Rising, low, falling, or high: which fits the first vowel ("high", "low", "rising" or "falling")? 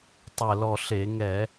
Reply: low